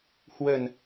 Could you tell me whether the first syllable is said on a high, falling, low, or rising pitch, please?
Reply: low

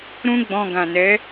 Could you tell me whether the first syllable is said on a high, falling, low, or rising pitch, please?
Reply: high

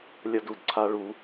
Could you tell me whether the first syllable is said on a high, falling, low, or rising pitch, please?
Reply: high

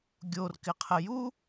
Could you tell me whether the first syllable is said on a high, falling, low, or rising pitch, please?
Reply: low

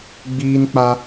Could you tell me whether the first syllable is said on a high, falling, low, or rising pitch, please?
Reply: high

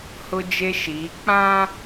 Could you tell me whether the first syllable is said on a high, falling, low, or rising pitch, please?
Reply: high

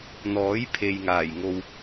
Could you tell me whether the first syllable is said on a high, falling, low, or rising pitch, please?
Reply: rising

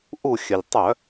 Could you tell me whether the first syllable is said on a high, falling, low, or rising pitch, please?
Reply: falling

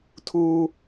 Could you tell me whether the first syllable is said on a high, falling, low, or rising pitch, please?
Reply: high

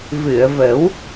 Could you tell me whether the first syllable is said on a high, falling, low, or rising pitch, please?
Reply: low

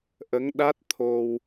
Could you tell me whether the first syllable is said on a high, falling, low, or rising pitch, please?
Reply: rising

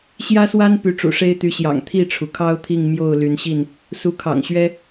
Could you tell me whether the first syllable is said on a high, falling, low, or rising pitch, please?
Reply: high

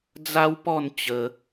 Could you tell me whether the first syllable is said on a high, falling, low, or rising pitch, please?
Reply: high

